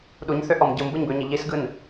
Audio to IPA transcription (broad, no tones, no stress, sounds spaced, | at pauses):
ɗ u ɲ θ ø ʔ ɔ m ɟ ɯ m b ɯ ɲ b ø ɲ i ʎ i s ɡ ɯ n